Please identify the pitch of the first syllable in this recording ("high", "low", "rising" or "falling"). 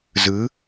rising